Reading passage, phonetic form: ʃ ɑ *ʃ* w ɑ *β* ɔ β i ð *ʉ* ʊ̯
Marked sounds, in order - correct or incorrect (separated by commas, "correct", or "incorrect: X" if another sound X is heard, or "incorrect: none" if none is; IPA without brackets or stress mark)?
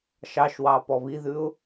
correct, incorrect: p, correct